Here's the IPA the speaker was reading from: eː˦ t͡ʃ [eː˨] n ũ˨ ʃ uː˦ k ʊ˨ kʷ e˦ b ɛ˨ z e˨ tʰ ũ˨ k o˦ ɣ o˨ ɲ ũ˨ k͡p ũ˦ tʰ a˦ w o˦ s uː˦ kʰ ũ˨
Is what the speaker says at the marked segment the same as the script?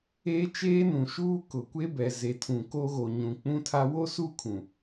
no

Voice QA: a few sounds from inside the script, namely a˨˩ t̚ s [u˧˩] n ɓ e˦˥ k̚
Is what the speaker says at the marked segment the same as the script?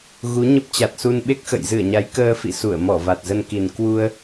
no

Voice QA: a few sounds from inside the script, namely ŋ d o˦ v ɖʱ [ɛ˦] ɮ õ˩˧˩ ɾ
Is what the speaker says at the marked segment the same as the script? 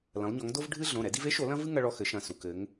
no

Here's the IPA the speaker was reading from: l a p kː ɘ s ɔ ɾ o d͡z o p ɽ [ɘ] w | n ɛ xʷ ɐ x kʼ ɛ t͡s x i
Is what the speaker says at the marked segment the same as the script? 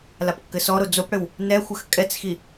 yes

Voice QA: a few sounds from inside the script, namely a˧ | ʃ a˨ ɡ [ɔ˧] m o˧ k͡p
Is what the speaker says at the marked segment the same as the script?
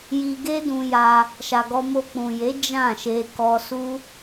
yes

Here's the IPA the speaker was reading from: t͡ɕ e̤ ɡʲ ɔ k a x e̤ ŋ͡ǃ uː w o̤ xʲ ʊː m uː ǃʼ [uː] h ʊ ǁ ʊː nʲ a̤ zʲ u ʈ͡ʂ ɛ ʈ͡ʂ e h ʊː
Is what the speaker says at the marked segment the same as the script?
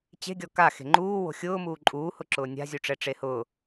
yes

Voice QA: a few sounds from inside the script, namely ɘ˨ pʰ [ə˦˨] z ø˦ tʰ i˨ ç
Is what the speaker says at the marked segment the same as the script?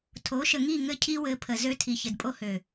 no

